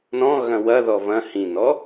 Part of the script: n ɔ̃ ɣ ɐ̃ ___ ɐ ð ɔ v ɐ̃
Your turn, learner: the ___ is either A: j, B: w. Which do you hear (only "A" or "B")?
B